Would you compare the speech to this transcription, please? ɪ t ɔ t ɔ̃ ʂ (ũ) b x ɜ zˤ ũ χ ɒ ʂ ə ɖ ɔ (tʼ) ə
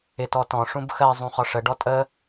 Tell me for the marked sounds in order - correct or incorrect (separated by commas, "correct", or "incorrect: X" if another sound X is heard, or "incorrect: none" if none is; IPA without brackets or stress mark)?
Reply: correct, correct